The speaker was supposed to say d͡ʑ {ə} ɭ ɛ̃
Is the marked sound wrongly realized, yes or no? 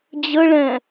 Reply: no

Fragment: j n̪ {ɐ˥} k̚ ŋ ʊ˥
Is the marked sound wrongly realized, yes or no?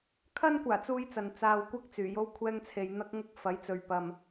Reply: no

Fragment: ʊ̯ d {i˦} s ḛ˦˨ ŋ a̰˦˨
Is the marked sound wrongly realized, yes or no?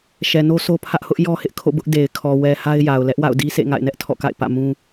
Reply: no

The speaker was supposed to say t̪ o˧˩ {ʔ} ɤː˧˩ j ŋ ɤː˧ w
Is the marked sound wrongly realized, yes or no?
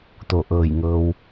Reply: no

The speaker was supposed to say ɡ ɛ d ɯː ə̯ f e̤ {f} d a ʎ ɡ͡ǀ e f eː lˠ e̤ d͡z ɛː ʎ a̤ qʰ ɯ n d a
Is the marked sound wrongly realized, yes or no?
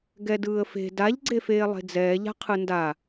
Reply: yes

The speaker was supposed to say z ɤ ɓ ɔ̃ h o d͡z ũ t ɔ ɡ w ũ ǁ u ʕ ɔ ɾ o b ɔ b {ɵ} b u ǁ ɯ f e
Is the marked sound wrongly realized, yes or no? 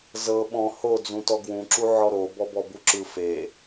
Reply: yes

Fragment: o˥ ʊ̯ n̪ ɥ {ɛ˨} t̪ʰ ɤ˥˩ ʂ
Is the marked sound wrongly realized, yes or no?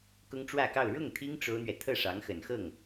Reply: no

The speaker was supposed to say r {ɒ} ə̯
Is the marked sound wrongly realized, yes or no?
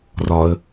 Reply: no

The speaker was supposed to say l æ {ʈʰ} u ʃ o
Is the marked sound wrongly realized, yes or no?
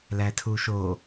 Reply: yes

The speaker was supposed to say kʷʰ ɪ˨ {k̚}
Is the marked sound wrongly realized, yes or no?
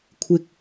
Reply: no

